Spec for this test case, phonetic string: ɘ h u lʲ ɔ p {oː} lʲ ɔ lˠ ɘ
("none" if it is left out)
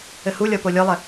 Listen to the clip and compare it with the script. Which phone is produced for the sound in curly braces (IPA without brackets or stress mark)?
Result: o